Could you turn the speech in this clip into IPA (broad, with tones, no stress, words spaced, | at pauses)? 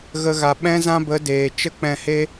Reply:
ɣə˧ɣa˨ ɓɛ̃˦ zã˦bə˨˦ deː˨ t͡ʃə˦k͡pɛ̃˧he˦